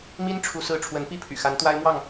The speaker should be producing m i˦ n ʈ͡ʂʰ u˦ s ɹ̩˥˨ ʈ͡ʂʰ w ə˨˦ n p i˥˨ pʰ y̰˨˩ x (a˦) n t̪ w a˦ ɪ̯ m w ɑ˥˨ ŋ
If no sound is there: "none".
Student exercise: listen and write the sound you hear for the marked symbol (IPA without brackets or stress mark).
a˨˦